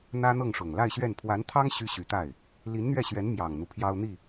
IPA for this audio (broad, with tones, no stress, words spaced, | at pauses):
n̪ä˥n̪ɤ˥˩ŋʂʊ˨˩ŋ la˥˧ɪ̯ɕɥɛ˥˩n pʰwa˧˥nt̪ʰɑ˥ŋ ɕy˥ɕy˧˥t̪a˥˩ɪ̯ | li˧˥nn̪ɥɛ˥˩ɕɥɛ˧˥n mjɑ˨˩ŋn̪u˦ pʰjɑ˥ʊ̯n̪i˥˩